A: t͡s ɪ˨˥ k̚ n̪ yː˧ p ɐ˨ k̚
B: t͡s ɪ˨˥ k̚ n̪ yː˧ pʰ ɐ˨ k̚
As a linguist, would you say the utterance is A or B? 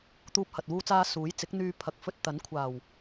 B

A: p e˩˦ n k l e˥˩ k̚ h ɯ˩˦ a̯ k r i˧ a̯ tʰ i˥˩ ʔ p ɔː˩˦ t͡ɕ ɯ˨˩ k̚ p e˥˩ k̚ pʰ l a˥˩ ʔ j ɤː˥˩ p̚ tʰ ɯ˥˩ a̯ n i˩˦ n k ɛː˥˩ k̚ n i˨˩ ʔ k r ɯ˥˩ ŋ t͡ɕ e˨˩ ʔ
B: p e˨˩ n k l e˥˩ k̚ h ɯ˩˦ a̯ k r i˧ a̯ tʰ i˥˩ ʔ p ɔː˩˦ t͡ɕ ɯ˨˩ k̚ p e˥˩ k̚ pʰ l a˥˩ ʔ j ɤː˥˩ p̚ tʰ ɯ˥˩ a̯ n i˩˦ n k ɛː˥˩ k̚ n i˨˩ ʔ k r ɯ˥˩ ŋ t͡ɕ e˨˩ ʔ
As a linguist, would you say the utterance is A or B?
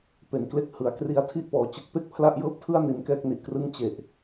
A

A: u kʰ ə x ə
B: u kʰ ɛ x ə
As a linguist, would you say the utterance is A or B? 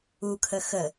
A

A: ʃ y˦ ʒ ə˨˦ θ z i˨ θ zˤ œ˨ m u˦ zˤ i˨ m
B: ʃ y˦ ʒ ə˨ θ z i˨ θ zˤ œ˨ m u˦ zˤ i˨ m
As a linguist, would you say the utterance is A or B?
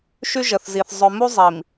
B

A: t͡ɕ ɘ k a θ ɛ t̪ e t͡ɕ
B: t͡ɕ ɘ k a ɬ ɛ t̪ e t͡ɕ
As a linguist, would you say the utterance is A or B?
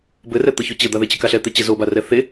B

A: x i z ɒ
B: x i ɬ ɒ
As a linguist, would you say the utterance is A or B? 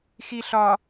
B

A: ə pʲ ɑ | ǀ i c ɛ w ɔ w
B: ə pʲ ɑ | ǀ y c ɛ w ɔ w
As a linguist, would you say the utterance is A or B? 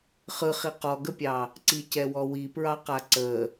A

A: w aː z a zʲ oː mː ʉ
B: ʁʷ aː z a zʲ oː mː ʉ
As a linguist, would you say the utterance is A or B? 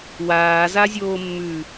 A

